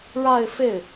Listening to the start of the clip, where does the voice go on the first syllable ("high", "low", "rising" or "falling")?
falling